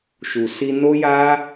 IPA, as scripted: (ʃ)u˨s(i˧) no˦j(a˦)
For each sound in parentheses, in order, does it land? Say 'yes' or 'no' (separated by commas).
yes, yes, yes